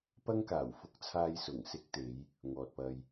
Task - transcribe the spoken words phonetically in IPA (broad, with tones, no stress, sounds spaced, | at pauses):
p ɐ˥ ŋ k aː˨˩ w f ʊ˧ k̚ t͡sʰ aː˧ j s ʊ˨˩ ŋ s ɪ˥ k̚ t̪ e˨˥ j | ŋ ɔː˨ t̚ p ɐ˧ j